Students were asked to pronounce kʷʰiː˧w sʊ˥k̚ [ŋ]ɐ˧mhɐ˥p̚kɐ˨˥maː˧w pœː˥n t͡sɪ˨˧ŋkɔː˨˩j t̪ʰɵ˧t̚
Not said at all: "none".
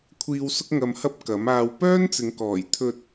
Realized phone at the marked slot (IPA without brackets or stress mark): ŋ